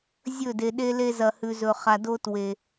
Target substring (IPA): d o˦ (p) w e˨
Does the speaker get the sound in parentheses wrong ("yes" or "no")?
yes